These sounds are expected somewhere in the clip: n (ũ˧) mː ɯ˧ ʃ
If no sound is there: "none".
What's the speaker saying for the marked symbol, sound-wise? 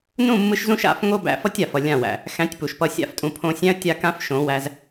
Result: ũ˦˨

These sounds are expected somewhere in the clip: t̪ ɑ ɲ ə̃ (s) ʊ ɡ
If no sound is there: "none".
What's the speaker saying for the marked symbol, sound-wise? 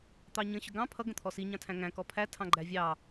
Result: ɕ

